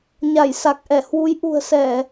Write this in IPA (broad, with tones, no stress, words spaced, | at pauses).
ɲa˧˩j sa˨˩k̚ʔɛ˧˩ hwu˨˦j ʔṳ˨˩ə̯sɛ˧˩˨